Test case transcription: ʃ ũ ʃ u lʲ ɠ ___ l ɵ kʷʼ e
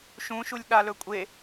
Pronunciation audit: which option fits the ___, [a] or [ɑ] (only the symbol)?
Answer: a